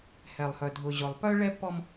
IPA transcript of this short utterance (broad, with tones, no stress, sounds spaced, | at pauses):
h ɛ˨ lˠ h œ˨ dʱ ʊ˨ ʑ ʊ˨ lˠ p œ˦ ɭ ɛ˦ pː ɔ˦ m